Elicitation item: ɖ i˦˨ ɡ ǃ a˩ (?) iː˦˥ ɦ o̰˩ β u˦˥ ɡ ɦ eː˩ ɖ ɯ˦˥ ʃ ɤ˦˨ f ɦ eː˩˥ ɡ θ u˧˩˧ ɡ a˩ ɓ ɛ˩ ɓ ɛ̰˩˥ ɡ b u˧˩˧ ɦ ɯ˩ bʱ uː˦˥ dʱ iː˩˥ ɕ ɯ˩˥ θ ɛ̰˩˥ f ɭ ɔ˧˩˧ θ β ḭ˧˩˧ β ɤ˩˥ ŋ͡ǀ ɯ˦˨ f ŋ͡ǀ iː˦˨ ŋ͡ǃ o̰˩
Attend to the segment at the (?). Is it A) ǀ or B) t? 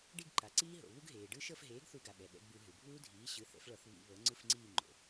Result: A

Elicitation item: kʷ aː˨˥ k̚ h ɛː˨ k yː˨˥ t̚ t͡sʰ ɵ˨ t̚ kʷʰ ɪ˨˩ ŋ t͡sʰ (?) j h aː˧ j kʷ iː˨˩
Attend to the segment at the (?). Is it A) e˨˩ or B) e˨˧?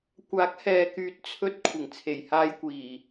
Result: A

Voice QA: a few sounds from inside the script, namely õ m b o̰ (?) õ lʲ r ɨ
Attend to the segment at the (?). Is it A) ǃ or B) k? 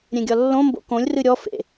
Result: B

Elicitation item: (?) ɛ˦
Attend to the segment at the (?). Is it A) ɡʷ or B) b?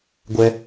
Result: A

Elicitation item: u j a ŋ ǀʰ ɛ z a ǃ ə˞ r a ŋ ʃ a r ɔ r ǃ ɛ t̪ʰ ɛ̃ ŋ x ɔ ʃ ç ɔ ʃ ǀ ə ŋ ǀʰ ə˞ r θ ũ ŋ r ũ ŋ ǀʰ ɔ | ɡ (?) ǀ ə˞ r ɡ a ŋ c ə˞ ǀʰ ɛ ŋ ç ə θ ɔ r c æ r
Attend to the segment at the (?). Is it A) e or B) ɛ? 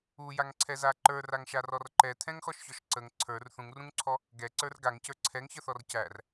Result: B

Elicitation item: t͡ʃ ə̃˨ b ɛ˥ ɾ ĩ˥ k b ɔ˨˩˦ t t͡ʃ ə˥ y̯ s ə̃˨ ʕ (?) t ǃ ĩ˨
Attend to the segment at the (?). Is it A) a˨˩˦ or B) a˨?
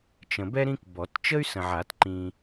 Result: A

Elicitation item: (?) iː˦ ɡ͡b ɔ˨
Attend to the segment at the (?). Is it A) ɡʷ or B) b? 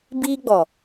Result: B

